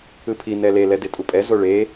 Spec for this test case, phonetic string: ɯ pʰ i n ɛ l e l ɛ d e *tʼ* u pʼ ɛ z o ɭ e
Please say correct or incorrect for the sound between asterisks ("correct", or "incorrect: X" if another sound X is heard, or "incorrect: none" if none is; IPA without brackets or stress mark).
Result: correct